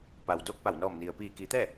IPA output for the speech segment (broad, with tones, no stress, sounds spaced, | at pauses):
p a˩ w d oː˥˨ k̚ p a˧˩ w n ɔː˧˩ m n i˩ ə̯ p iː˧˩ k i˩˧ t̪ ɛː˥˨